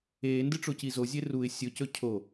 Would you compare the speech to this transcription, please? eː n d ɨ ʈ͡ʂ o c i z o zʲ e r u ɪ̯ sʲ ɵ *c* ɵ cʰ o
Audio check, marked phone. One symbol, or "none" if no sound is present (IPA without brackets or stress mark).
c